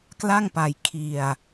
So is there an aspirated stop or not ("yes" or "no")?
yes